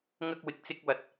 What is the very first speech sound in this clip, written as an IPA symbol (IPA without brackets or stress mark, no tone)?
ŋ